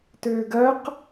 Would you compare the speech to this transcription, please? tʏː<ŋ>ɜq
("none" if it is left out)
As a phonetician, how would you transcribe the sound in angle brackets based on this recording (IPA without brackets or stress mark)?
ɡ